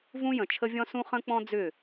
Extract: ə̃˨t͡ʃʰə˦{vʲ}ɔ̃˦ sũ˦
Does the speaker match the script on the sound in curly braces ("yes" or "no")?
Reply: yes